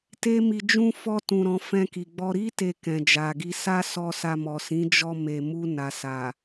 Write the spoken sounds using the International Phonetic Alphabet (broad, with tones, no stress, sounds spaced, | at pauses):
t e˦ m i˧ d͡ʒ ũ˦ f ɔ˧ t ũ˨ ɾ ɔ̃˨ f ɛ̃˧ k i˨ ɡ͡b ɔ˧ ɾ i˦ t e˧ k ɛ̃˨ d͡ʒ a˨ ɡ i˧ s a˦ s ɔ˧ s a˧ m ɔ˨ s ĩ˨˦ d͡ʒ ɔ˧ m e˨ m u˧ n a˨ s a˨